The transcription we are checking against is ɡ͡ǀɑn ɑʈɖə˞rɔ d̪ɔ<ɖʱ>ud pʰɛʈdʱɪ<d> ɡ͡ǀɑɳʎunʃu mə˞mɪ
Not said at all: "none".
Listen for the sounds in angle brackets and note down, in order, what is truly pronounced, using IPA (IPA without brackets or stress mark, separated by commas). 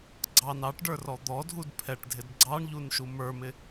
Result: dʱ, d